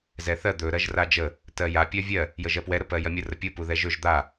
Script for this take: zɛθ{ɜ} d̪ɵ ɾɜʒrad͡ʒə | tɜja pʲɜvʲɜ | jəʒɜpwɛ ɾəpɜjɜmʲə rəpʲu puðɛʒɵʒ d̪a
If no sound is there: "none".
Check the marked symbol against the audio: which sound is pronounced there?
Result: ɜ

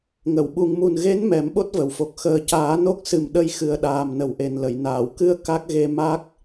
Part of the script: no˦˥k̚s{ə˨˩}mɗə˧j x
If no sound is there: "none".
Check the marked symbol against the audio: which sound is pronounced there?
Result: ɨ˨˩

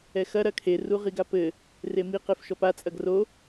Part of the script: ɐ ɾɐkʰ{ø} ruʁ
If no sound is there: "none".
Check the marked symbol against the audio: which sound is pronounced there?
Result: e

